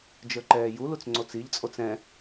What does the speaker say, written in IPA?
d͡ʒ ə˞ ǃ ɛː j u l u t͡s ŋ͡ǀ o t͡s i ʎ t͡sʼ o t͡s ɛ̃

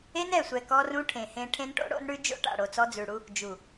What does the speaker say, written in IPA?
e˦ n ɛ˨ sʷ ɛ˨ k ɔ˦ r ũ˦ ʈʰ ẽ˨ h ẽ˦ ʈʰ ẽ˦ n ʈ o̰˦ ɽ o̰˦ n ɽ ʉ˦ d͡ʒ o̰˦ ʈ a̰˨ ɽ o˨ t͡s ɔ˦ d͡z ʉ˨ ɽ u˦ | d͡ʒ u˨

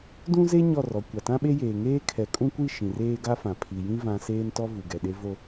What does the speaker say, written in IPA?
d ũ˦ z e˦ ɲ ɔ˦˨ r ɔ˨ kʷ a˨ t ã˦ ɓ e˦ j eː˨ ŋ eː˦ kʰ ɛ˨˦ kʼ ũ˦ kʷ i˦˨ ʃ ĩ˨ r eː˦ ɡ a˦ f ã˨ pʰ i˨ j ĩ˦ v ã˦ s eː˦ n t ɔ˦ v u˨ ɡ ɛ˨ ɗ e˦ v o˦

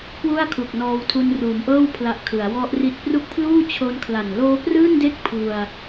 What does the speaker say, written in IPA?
k w u˥˩ a̯ kʰ u˨˩ k̚ n ɔː˧ w tʰ u˧ n r uː˩˦ m ʔ ɤː˥˩ w pʰ l a˨˩ ʔ kʰ ɯ˩˦ a̯ w ɔ˦˥ ʔ r i˥˩ t̚ p r u˦˥ k̚ pʰ l uː˥˩ t͡ɕʰ o˧ n kʰ l a˨˩ n l oː˦˥ p r ɯː˥˩ n d e˥˩ k̚ pʰ u˧ a̯

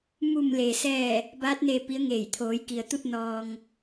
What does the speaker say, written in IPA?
m u˧˩ m l e˩ s ɛː˧˩ | b aː˧˥ t̚ n eː˧ p i˧˥ ə̯ ŋ eː˧˩ j t̪ʰ oː˩˧ j k i˩ ə̯ t̪ u˥˨ t̚ n ɔː˧ ŋ

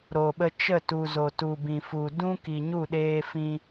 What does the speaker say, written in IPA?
ɾ o˨ ɓ ə˧ t͡ʃ ə˦˨ t u˨ z o˨ t u˨ b ĩ˨ f u˨ d ũ˦ k i˨ ɲ u˦˨ ɗ eː˧ f ĩ˦

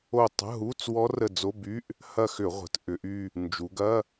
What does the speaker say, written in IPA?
o˦˨ tˤ ə̤˧˥˧ ɦ u˧˥˧ t͡s w ɔ˦˥ r ə˦˨ d͡z o˧˥˧ b y˧˥˧ ʔ | h ɐ˦˨ x ʏ˧˩˧ ʁʷ ə̤˩˧ t ʔ ʏ˩˧ ʔ y˦˨ | n d͡ʒ u˩˧ ɡ ɐ˧˥˧

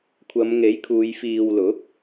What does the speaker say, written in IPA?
kʷʰ ɐ˨˧ m ŋ e˨˥ j kʰ uː˨˧ j f iː˨ w l ʊ˨˥ k̚

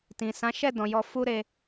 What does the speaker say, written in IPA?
t ĩ˨ s ã˨˦ ʃ ɛ˦˨ d ɔ̃˨ j ɔ˧ f u˦ ɾ e˧

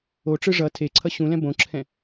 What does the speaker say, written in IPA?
o ʈ͡ʂ ɯ ʐ ʌ tʰ e ǀʰ ʌ ɕ ũ l ɛ̃ b õ ǁʰ ɛ̃

